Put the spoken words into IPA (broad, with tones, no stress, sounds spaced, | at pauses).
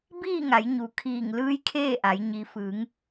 b iː˥˨ ŋ a˩˧ j ɲ u˩ kʰ iː˧˩ ŋ l ɯː˧˥ j kʰ eː˥˨ ʔ a˩˧ j ɲ i˩˧ f ɯː˩˧ ŋ